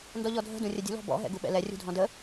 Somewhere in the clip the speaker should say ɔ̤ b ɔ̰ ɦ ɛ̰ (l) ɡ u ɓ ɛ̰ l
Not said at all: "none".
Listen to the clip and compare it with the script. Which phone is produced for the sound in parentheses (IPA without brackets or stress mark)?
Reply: none